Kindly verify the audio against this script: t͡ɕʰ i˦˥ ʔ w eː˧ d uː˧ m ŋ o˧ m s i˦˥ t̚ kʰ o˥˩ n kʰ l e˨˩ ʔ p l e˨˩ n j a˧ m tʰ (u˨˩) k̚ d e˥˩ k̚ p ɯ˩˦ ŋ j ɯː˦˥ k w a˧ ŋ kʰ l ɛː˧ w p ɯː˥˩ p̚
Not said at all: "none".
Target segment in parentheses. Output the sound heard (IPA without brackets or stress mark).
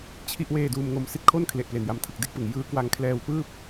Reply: ɯ˨˩